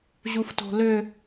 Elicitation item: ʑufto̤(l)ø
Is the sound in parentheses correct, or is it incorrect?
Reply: correct